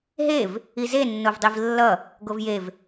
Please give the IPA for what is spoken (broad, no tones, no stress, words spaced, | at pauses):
ɦev | ize nːovdˤivlːʌ | ɡovjev